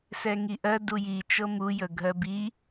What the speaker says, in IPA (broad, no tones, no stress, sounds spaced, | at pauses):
s ɛ ŋ i ʔ ɜ d u j i t͡ʃ ɤ m u j ə ɡʱ ɜ b i